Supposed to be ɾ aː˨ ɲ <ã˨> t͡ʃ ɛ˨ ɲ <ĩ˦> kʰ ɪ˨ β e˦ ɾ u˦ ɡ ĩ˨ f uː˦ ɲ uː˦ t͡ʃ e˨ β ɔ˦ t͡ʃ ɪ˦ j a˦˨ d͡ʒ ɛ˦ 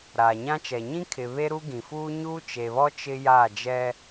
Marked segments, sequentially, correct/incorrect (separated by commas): incorrect, correct